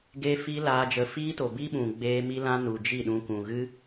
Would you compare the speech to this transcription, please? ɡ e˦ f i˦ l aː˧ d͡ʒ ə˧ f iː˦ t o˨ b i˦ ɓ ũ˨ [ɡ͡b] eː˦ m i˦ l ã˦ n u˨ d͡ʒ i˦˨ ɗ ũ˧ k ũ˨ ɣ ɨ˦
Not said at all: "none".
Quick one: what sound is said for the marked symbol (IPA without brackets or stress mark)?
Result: ɡ͡b